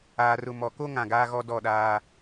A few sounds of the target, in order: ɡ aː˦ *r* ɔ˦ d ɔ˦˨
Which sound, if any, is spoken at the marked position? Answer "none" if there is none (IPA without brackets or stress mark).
ɣ